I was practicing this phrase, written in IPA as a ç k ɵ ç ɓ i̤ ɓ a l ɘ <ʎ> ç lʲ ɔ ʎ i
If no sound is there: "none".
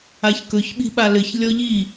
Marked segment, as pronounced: none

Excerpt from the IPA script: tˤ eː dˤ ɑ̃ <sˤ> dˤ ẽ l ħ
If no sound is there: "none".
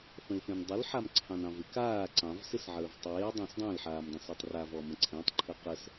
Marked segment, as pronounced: s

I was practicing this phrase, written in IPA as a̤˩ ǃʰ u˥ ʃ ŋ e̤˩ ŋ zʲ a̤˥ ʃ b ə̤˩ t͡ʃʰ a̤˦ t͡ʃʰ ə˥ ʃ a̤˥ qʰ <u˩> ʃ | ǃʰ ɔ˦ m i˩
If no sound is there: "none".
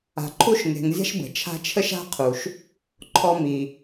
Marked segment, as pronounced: u˩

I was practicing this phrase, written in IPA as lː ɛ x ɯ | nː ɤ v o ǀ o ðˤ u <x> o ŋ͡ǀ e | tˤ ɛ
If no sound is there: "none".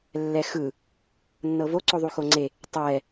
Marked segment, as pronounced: x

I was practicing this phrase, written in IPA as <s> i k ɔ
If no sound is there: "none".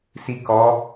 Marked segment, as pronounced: s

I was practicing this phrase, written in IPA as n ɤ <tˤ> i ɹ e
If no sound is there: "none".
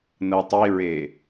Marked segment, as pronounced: tˤ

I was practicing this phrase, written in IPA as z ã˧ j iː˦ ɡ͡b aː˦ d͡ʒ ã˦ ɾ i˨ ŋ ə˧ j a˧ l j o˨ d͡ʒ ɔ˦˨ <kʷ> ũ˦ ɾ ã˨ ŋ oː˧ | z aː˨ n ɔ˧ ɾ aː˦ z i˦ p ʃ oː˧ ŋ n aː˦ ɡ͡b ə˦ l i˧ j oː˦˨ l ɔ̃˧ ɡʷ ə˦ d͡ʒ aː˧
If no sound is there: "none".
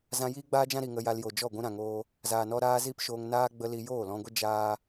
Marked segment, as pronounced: ɡʷ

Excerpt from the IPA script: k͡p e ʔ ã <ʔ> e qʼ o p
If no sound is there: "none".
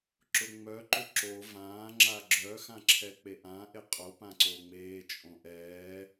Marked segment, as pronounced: ʔ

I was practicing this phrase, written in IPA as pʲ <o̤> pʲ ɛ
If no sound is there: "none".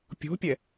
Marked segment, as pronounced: o̤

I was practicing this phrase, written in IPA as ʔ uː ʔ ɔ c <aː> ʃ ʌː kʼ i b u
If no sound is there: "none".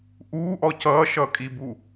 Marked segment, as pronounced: ʌː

